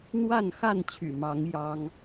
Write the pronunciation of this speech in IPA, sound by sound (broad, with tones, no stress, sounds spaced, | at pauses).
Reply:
n̪ w a˥˨ n x a˥˨ n t͡ɕʰ y̰˨˩ m ɑ˨˦ ŋ j ɑ˦ ŋ